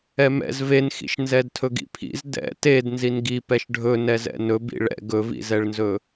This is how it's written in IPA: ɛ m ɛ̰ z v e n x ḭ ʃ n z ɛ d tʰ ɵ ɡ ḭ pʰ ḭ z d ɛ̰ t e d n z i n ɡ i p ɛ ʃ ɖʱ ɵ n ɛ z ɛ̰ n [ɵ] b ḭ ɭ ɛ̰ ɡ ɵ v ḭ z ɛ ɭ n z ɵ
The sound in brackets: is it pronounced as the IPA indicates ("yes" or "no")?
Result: yes